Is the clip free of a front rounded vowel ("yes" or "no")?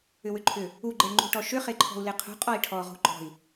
no